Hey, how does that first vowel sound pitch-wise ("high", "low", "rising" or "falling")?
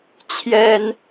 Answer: high